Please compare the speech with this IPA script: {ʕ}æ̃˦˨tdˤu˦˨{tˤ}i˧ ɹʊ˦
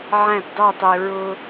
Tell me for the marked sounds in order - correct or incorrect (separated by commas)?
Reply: correct, correct